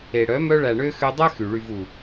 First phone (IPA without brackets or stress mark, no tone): e